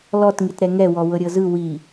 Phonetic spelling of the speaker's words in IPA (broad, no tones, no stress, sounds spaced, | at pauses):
l ɔ t ŋ i t ɾ ɛ ŋ ɛ w ɔ w ɤ ɾʲ ɤ z ɯ w i